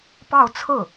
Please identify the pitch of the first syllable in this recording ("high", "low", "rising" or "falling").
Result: falling